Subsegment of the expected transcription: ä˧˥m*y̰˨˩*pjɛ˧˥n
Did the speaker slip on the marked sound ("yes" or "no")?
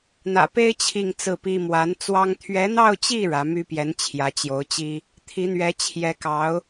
yes